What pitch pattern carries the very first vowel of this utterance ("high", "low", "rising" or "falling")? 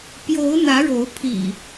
rising